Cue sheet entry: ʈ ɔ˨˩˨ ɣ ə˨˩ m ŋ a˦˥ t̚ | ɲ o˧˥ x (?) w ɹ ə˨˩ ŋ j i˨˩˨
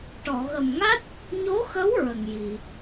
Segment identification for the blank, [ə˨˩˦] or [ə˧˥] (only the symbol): ə˧˥